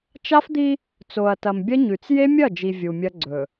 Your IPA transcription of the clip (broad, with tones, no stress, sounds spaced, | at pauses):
t͡ʃ a˦ f d̪ i˦ | t͡s o˨ ɐ̯ t ɐ˨ m bʲ ɐ˦ ɲ ʉ˨ t͡s j e˦ mʲ ɐ˦˨ d͡ʒ i˨ vʲ u˨ mʲ ɐ˦ ɡ͡ǀ ɵ˨